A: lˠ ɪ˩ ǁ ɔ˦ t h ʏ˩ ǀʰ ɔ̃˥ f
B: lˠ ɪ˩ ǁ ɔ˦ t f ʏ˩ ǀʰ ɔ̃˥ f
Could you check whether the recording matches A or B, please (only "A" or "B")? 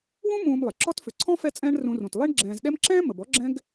B